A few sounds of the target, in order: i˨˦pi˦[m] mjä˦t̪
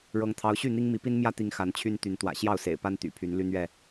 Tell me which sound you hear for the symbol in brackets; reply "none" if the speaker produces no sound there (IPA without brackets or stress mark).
n